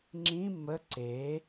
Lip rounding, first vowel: unrounded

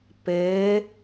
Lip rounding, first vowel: unrounded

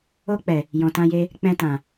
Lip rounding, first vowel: rounded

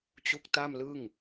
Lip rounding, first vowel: rounded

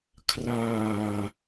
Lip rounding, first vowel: unrounded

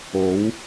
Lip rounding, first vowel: rounded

